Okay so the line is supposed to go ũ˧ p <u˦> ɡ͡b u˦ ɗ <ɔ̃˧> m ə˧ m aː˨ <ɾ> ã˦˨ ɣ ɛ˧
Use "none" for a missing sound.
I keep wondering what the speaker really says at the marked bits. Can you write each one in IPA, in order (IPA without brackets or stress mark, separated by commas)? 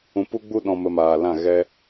u˦, ɔ̃˧, l